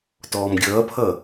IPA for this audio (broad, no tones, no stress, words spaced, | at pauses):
tɔːmɡʲʌːpʰʌː